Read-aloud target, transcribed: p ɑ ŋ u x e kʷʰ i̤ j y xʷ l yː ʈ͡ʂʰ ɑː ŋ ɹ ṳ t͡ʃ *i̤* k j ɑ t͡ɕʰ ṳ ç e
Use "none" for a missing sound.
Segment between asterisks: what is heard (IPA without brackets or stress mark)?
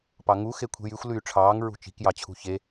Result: i̤